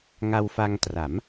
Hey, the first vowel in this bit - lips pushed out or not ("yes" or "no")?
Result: no